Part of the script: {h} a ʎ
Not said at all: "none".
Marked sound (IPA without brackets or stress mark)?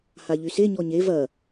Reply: h